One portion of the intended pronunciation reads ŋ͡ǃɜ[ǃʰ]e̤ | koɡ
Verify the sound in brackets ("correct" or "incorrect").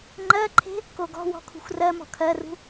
correct